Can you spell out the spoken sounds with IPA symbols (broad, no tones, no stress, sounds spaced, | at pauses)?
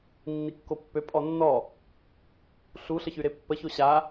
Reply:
nː i kː o pː ø pʼ ɔ nː ɔ | ɬ u ɬ ə ç y ɾ e pː ə ç o ɕ a